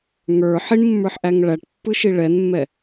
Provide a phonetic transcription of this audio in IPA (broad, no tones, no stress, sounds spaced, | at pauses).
ŋ ə˞ ħ i ɳ mː ə˞ ħ ʔ æ ŋ ɭ æ ʈ pː ɯ ʃ i ɭ ɛ n mː ɛ